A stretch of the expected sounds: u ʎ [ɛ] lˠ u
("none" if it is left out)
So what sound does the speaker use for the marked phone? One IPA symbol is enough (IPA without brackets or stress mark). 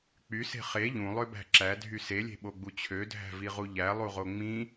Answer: æ